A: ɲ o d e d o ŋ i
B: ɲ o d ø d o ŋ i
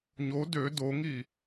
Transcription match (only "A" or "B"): B